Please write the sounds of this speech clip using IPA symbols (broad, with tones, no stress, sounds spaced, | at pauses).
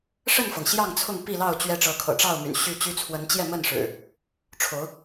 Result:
ʂ ə˥˨ n f ɤ˩ ŋ ɕ j ɑ˥˨ ŋ t͡sʰ ʊ˥˨ ŋ p i˥˨ l ɑ˥˨ ʊ̯ t͡ɕ ɥ ɛ˨˦ ʈ͡ʂ ɤ˨˦ kʰ ɤ̰˨˩ ʈ͡ʂ ɑ˥˨ ʊ̯ m y̰˨˩ n ɕ y˥˨ t͡ɕ y˦ t͡sʰ w ə˨˦ n t͡ɕ j ɛ˥˨ m ə˥˨ n ʂ ɻ̩˨˩ | ʈ͡ʂʰ o˨˦ ʊ̯